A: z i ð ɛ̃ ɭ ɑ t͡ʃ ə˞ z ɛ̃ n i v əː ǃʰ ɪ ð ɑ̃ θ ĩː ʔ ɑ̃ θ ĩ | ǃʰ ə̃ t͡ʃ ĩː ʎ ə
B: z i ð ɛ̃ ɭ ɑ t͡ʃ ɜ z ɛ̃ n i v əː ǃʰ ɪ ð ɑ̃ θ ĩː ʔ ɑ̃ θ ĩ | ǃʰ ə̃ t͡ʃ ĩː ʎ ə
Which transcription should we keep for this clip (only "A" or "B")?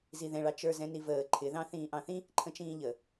A